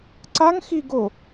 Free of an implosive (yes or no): yes